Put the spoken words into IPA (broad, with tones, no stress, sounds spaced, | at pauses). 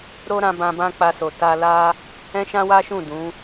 ɾ o˦ ɾ ã˧ b ã˧ b ã˦ k͡p a˧ s o˨ t a˧ l a˦ | ɛ̃˦ ʃ ã˦ w a˦ ʃ ũ˦˨ d ũ˨˦